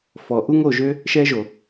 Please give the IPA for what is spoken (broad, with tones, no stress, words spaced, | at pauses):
fɔ˨ ʔu˦ŋo˦˨ʒø˦ | ʃɛ˦ʒo˨